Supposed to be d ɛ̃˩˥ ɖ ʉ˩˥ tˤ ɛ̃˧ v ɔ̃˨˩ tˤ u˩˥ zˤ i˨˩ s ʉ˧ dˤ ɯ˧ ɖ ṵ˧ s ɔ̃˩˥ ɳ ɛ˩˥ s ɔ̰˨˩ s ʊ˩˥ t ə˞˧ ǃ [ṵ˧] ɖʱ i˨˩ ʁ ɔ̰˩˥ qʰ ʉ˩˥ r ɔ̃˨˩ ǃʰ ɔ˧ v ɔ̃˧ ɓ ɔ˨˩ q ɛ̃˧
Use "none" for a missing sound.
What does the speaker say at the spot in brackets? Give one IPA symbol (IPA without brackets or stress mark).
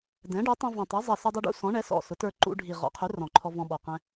ṵ˧